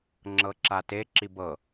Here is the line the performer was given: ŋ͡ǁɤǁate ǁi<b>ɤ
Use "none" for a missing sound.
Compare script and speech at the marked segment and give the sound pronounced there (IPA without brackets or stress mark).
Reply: b